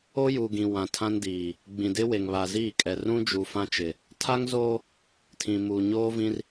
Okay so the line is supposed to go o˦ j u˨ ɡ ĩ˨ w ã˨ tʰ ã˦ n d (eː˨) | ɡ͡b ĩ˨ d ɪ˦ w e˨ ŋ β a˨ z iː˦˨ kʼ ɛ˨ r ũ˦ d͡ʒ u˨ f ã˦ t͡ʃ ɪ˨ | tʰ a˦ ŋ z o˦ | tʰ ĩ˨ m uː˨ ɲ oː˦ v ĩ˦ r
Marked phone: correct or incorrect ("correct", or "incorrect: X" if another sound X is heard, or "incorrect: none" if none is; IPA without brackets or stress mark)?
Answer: incorrect: iː˨